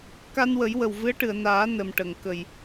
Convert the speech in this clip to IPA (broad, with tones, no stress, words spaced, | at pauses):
ka˧nwə˨˩˦jwə˨˩w vɨ˧˥ə̯ʈɨ˨˩˨ə̯naː˨˩˦ nə˨˩mʈə˨˩˨ŋ kə˨˩j